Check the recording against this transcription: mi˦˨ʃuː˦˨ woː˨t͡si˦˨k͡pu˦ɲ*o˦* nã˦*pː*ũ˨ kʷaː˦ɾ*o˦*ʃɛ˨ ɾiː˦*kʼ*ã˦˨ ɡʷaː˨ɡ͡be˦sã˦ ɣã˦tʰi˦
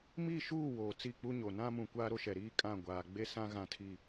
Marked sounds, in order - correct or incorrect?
incorrect, incorrect, correct, correct

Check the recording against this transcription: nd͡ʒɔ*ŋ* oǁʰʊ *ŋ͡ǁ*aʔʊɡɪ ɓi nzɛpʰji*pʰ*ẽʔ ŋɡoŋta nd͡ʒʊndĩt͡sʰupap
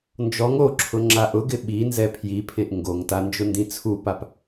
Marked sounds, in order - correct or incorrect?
correct, correct, correct

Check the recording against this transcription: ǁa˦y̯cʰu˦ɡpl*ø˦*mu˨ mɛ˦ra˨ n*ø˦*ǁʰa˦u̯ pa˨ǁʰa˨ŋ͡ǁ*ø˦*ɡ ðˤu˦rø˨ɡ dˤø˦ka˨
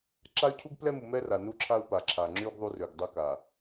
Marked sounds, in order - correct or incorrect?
incorrect, incorrect, incorrect

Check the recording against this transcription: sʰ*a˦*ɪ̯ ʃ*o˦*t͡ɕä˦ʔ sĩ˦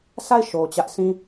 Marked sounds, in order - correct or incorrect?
incorrect, incorrect

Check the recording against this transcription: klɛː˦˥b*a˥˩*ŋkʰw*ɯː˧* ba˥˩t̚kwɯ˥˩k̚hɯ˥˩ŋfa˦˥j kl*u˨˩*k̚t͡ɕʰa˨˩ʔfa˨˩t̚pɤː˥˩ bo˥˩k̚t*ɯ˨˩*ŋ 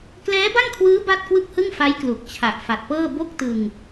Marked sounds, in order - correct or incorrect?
correct, incorrect, correct, incorrect

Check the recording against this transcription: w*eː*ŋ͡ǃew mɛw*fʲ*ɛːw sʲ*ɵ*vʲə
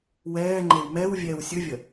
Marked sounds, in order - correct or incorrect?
incorrect, incorrect, correct

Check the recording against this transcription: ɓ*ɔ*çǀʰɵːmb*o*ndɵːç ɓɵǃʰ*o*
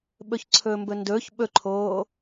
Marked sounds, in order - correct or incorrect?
incorrect, incorrect, incorrect

